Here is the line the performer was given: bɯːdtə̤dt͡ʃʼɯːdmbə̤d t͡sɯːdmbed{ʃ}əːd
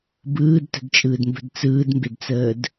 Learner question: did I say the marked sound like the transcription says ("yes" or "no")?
no